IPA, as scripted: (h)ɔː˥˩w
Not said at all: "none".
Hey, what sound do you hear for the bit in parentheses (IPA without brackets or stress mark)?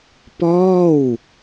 p